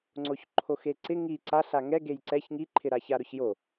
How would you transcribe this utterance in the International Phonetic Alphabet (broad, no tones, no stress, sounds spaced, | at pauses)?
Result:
ŋ͡ǀ o ç ǃʰ o x e ǀ ɪ ŋ i ǀ a ɬ a ŋ ɛ ɡ e j ǀ ɛ ç ŋ i ǃʰ ɪ ɾ a ç a ɾ ʊ ç j o